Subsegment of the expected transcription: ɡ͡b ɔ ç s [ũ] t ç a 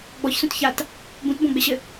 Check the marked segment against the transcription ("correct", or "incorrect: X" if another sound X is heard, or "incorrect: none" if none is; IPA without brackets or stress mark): correct